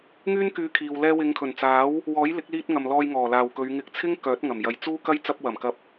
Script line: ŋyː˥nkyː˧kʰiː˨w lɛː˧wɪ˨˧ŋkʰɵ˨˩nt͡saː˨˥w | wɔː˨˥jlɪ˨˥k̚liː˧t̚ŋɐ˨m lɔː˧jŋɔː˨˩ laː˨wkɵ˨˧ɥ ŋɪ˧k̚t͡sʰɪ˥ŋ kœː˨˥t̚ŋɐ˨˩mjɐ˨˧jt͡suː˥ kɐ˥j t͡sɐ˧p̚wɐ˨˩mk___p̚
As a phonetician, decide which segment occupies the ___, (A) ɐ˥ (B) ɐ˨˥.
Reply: B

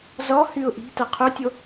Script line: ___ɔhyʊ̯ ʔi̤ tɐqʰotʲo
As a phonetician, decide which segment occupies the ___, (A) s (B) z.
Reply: B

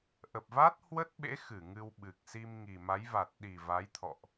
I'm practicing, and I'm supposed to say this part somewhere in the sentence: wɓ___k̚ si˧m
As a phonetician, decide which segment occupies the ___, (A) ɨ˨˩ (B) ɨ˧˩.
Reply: A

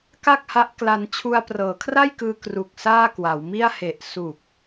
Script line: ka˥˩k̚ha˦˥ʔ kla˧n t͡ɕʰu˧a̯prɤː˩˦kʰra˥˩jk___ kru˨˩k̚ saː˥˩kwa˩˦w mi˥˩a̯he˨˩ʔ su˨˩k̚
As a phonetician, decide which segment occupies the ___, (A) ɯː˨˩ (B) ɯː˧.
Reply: B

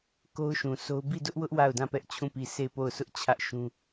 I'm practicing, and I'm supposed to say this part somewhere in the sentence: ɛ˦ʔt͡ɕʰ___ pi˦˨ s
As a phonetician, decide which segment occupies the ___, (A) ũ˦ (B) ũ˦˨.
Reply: B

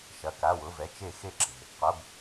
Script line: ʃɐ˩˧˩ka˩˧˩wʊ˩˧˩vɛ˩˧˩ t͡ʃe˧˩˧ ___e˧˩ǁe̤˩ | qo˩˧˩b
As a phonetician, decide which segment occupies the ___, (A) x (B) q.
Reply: A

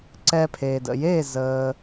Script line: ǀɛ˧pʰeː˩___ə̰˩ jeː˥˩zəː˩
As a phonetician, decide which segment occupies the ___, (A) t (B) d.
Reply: B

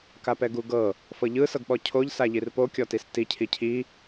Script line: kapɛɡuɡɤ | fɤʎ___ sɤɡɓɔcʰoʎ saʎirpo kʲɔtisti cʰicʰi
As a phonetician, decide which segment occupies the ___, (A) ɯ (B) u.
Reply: A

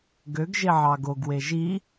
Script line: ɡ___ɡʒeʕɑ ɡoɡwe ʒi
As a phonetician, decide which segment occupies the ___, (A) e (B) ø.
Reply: B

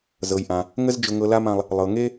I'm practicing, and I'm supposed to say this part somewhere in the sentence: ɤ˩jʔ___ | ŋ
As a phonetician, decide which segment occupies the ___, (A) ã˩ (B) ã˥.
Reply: A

